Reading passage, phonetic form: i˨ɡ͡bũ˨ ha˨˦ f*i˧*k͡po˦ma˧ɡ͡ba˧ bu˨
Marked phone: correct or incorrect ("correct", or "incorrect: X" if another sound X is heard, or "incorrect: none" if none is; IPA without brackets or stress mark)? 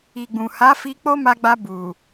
correct